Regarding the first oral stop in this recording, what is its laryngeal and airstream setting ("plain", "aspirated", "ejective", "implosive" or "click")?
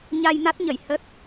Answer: plain